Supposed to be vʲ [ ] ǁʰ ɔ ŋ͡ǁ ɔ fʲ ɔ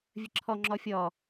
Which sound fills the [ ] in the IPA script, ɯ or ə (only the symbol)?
ə